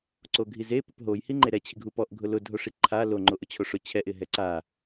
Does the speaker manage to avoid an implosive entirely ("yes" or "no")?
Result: yes